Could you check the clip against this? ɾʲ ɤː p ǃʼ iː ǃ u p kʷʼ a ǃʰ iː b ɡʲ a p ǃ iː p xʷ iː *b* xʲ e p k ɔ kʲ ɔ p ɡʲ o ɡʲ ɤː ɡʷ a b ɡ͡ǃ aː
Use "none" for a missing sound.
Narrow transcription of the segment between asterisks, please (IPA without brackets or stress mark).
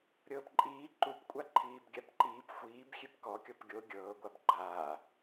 b